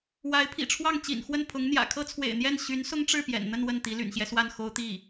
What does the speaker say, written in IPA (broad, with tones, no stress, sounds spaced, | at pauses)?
w a˧˥ ɪ̯ pʰ ḭ˨˩ ʈ͡ʂʰ w ɑ˥˩ ŋ t͡ɕ ḭ˨˩ n x w ə˥˩ n pʰ ʊ˧˥ ŋ n̪ j ä̰˨˩ kʰ ɤ˥ t͡sʰ w ḛ˨˩ ɪ̯ n̪ j ɛ˥˩ n ɕ y˧˥ n s ʊ˥ ŋ ʈ͡ʂ ɻ̩˥˩ p j ɛ̰˨˩ n n̪ ə˥˧ n w ə˥˩ n t̪ i˧˥ l y̰˨˩ n ɕ j ɛ˦ s w a˥˩ n x o˥ ʊ̯ t̪ i˥˩